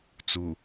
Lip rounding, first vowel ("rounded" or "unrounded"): rounded